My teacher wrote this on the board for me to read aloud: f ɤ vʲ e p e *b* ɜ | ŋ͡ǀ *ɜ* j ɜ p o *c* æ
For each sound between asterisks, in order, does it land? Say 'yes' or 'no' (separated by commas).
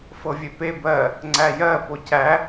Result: yes, no, yes